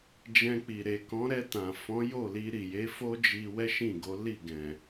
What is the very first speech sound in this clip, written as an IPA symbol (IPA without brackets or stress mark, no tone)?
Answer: d͡ʒ